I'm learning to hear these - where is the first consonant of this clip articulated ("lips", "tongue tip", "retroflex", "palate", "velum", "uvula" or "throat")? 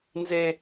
tongue tip